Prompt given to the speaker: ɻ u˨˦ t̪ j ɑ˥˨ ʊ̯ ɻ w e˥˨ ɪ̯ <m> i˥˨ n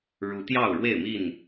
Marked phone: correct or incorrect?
correct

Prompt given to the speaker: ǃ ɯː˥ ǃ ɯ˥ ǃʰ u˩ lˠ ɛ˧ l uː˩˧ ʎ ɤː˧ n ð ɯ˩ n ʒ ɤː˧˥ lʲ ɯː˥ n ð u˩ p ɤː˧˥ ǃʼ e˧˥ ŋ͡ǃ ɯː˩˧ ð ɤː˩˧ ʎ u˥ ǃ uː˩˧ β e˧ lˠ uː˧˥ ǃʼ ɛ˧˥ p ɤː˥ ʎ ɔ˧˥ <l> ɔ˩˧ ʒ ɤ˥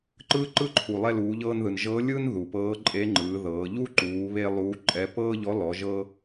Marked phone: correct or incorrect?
correct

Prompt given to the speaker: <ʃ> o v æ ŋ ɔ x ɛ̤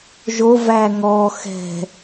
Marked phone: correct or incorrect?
incorrect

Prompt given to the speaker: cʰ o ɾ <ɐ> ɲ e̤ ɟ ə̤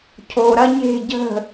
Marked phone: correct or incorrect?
correct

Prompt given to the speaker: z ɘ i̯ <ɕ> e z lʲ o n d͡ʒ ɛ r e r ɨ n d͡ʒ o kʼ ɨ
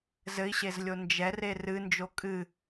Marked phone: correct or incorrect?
correct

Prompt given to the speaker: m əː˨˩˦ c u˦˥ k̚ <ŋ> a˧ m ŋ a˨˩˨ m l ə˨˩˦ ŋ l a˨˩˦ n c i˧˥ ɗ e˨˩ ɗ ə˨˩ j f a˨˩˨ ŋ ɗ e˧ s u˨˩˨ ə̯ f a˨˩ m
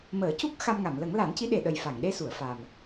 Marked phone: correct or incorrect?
incorrect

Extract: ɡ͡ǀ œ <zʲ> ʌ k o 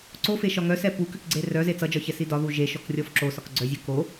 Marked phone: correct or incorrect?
correct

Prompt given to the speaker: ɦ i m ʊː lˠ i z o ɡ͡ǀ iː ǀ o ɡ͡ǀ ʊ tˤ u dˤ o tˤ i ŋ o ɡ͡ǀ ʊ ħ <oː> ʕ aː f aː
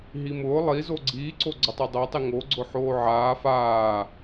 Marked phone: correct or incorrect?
correct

